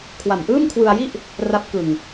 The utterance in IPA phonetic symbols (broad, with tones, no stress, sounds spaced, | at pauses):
kʰ w a˨˩ m ʔ ɯː˥˩ m kʰ w ɯ˧ a̯ j i˥˩ ʔ | r a˦˥ p̚ k ɯ˧ ŋ